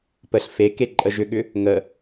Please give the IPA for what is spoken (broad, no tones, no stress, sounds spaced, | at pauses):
p ə ɬ f e k e ǃʼ ə ʒ ʏ ɠ ʏ | ŋ ə